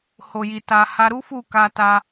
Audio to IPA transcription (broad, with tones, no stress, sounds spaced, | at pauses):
h o˨ j i˨ t a˧ h a˧ ɾ u˦ f u˦˨ k a˧ t a˧